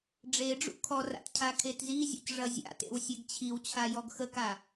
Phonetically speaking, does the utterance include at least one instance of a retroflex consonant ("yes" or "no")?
yes